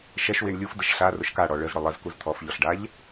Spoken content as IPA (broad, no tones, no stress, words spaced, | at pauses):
ʃɛʃwiɳ lʲufdəʃ ɬa rʊʃkaɽɔ ɭəzɽʊ lˠəzkuz t̪ʰɔfʎɔɬɖaʎ